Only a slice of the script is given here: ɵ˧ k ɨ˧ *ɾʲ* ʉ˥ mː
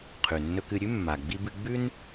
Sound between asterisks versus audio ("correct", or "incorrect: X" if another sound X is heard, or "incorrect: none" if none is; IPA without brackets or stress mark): correct